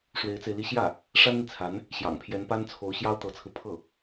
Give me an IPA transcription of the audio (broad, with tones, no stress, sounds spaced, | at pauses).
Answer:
ʂ w e˧˥ ɪ̯ t͡s e˧ ɪ̯ l i˥˧ ɕ j ä˥˩ | ʂ a˥ n n̪ i˨ t͡sʰ a˧˥ n | ɕ j ɑ̰˨˩ ŋ pʰ j ɛ˧˥ n p a˥ n t͡sʰ o˧˥ ʊ̯ ɕ j ɑ˥ ʊ̯ t̪ ɤ˧˥ t͡sʰ ɹ̩˧ pʰ ɤ˥˩